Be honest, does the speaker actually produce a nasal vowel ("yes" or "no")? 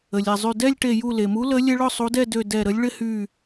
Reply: no